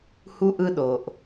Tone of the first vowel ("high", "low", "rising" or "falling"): high